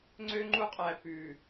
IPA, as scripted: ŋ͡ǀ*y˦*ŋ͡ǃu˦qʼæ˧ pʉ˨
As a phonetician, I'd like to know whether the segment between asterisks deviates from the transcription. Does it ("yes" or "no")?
yes